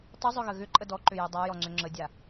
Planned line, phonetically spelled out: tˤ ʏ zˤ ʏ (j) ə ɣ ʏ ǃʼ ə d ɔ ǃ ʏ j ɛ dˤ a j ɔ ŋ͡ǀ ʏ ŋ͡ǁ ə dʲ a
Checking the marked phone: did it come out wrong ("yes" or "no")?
yes